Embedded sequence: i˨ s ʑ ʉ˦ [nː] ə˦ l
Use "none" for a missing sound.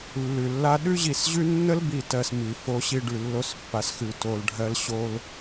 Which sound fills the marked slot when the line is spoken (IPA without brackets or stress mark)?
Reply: nː